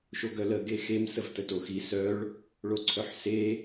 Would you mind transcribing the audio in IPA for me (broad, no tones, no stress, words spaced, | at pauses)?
ʃoɡœlə ɡexem səvtətoxi sœɭ | ɭoǀʰœħse